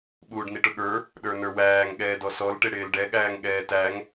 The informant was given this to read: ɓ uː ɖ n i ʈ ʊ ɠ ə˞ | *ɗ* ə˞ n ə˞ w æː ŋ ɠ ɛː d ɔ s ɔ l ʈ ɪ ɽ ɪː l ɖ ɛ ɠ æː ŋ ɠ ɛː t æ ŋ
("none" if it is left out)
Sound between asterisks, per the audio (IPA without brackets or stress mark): ɗ